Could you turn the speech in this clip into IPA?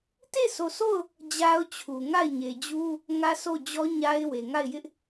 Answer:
t e˦˨ sʰ o˨ s o˦˨ ʊ̯ | d͡ʑ a˦ ʊ̯ t͡ɕʰ u˨ ŋ a˦˨ ɪ̯ ɲ e˨ d͡ʑ u˦ | ŋ ä˦ s o˦˨ d͡ʑ ɔ˦ ɲ a˦ ɪ̯ w e˨ ŋ a˦˨ ɪ̯ j ɪ˦ ʔ

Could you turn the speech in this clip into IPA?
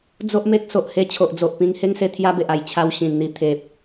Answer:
d͡z o˦ ʔ m e˦ k̚ s o˨ ʔ h e˦ t͡ɕʰ o˨ ʔ d͡z o˨ ʔ p ĩ˧ ŋ h e˦ ŋ s e˧ t̪ʰ j a˦ b e˨ ʔ a˨˩ j t͡ɕʰ a˧ w ɕ ĩ˨˩ n n̪ i˨˩ t̪ʰ e˨ p̚

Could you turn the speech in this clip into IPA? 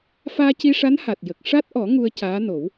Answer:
f aː˧ c i˧ ʂ a˧˥ n h a˨˩ t̚ j ə˨˩ k̚ ʂ a˦˥ t̚ ʔ ɔ˨˩˦ ŋ u˧ ə̯ c aː˧˥ n o˨˩˦ w

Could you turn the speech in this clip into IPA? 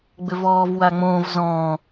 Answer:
ɡ͡b ʏ v ɔː v w a ŋ͡m õː v z ɔ̃ː

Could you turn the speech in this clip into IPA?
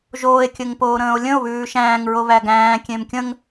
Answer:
ʒ oː e̯ kʲ ɘ ŋ p oː ɾ ə̃ː o̯ lʲ ə̃ o̯ β ʉː ʃ æ̃ː ŋ ɹ o β æ ɡ æ̃ː kʲ ẽ m kʲ ə̃ ŋ

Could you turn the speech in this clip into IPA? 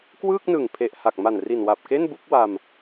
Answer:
k w ɯː˥˩ k̚ n ɯ˨˩ ŋ pʰ e˨˩ ʔ h a˨˩ k̚ m a˨˩ n r i˨˩ n w a˨˩ p̚ k e˥˩ n b u˥˩ k̚ w a˧ m

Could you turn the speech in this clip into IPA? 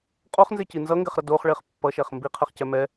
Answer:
qʼ o χ n z e c i n z ʌ ŋ ɡ ɛ χ ɾ ʌ d o χ ɭ e χ pː ʌ ʃ ɛ χ m b i qʰ ɛ χ c ɛ m ɛ

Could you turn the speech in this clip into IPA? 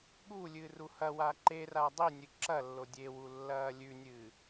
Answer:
ɠ u lʲ ɨː r u h ɐ w a ǃ e r a dˤ i nʲ ɨ ǁ ɐ lː o dʲ e w u lː ɐː lʲ ʉ nʲ ɨː

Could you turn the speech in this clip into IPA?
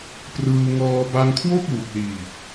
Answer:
p r ɯː˧ ŋ ɔː˧ b a˧ ŋ kʰ w o˥˩ k̚ w u˨˩ k̚ l iː˨˩ k̚

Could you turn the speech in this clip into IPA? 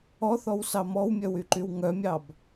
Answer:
ɔ θ ɔ w s ɑ m ɔ w mʲ œ w y ǃ y w ŋ œ mʲ ɑ b

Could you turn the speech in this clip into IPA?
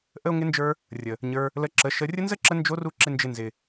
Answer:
ʔ ə˦ o̯ ŋ ɪ˦ n d͡ʒ ə˞˦ | rʲ ə˨ | ɲ ə˞˧ | l ə˧ ǁ ə˨˦ ʃ ə˧ rʲ ə˦ n z ə˦ ǁ ə˧ n d͡ʒ o˦ r u˦ ǁ ɪ˦ n d͡ʒ ɪ˧ n z ɪ˨

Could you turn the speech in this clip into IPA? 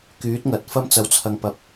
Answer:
k yː˨˥ t̚ ŋ ɐ˨˥ t̚ f ɐ˥ m t͡s ɐ˨˥ w t͡sʰ ɐ˨ ŋ p ɐ˨ p̚

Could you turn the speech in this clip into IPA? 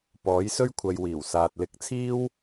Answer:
p ɔː˨˥ j s ɵ˥ ɥ kʷʰ ɐ˨ j w iː˨˩ w s aː˨ t̚ l ɪ˨˥ k̚ t͡sʰ iː˥ w

